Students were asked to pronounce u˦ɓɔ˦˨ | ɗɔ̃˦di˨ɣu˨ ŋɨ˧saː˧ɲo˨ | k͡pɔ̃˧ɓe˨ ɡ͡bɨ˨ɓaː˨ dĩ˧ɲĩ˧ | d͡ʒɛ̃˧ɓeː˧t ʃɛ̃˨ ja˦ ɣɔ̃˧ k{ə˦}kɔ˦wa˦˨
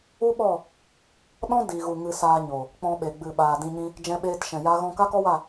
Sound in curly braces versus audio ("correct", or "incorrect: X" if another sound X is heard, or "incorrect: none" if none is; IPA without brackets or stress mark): incorrect: a˦